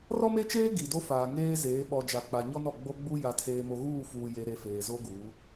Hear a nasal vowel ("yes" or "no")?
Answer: no